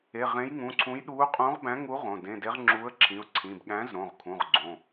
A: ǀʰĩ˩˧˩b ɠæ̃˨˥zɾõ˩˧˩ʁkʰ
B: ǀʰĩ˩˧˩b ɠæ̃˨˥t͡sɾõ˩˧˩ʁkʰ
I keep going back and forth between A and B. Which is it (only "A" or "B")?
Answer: A